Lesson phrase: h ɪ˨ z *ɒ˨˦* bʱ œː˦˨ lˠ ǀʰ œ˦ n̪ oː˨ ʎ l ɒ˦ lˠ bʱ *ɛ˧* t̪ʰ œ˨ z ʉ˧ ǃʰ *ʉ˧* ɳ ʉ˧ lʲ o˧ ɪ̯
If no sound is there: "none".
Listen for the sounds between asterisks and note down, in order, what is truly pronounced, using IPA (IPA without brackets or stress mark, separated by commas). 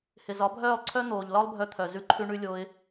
ɒ˨˦, œ˧, ʉ˧